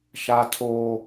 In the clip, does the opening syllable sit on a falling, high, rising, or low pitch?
high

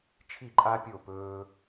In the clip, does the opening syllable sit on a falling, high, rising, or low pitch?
falling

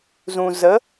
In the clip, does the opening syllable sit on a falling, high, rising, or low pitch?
low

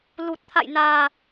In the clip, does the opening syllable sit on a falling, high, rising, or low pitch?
low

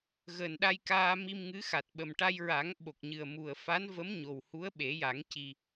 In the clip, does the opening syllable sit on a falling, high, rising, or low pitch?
low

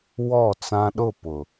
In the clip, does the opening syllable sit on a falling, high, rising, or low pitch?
falling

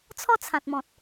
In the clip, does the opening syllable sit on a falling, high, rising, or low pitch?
falling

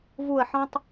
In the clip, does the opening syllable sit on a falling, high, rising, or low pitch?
falling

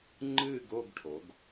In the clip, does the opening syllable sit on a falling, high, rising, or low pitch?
falling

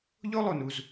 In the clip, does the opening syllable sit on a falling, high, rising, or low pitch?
high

